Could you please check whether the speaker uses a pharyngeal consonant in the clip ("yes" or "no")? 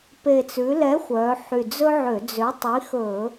yes